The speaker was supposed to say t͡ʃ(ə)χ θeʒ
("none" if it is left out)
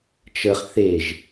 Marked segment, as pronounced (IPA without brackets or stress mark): ə